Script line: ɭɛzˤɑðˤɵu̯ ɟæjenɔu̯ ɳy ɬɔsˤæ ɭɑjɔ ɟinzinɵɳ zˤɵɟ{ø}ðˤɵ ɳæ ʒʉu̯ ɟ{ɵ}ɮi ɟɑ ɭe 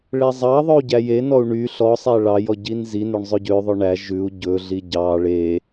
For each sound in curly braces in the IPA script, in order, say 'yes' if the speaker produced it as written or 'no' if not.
yes, yes

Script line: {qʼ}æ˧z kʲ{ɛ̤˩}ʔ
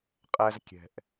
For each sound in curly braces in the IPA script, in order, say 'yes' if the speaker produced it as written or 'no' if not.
yes, yes

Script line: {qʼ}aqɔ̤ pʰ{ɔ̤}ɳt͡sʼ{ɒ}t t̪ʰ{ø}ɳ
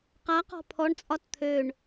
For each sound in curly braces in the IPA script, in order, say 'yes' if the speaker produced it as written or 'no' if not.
no, no, yes, yes

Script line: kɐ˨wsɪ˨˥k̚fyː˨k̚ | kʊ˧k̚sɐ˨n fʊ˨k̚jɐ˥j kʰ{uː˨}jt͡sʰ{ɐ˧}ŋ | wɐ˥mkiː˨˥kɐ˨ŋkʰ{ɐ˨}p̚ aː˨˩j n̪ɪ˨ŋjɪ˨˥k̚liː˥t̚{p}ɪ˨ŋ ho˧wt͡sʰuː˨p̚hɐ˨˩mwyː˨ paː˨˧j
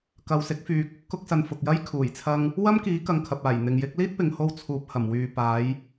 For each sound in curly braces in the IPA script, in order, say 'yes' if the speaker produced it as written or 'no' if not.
no, yes, yes, yes

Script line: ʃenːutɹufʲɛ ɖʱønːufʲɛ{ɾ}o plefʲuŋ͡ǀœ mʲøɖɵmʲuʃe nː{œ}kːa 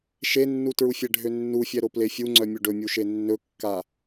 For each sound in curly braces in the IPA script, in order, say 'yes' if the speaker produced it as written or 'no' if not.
yes, no

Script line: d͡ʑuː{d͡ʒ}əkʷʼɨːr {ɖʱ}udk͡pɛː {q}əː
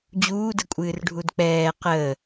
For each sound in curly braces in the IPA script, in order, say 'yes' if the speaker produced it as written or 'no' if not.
no, yes, yes

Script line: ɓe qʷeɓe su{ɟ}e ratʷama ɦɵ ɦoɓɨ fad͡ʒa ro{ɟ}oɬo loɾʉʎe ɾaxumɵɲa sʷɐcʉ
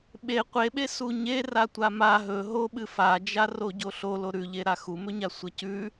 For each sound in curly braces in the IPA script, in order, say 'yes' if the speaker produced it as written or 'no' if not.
no, yes

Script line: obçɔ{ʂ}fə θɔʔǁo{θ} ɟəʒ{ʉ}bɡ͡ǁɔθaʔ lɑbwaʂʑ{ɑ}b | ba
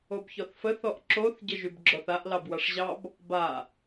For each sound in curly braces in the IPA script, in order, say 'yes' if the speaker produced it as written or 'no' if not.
no, yes, yes, yes

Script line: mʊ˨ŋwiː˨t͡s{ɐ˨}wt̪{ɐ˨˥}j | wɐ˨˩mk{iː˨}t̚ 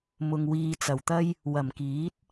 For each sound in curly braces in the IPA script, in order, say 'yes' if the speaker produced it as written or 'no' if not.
no, no, no

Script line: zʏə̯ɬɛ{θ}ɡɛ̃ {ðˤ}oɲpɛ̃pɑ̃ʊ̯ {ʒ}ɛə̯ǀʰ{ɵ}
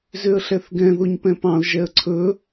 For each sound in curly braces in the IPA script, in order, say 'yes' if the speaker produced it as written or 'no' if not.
yes, no, yes, yes

